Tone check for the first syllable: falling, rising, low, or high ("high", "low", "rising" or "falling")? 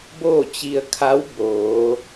falling